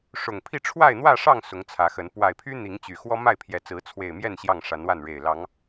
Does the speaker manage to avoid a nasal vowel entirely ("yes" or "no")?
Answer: yes